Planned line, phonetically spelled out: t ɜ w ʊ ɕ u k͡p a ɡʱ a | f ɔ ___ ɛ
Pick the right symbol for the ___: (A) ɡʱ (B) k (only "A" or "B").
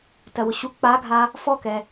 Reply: B